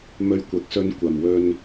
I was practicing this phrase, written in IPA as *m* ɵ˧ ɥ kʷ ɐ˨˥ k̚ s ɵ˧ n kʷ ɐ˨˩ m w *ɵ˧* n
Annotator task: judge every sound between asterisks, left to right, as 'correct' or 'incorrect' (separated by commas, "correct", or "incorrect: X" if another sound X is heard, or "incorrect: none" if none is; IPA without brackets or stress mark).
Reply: correct, correct